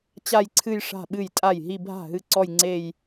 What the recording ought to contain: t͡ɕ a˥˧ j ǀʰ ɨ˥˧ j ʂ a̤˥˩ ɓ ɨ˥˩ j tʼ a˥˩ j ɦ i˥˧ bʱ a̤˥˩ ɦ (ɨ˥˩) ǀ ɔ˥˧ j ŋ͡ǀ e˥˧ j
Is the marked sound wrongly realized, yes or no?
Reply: no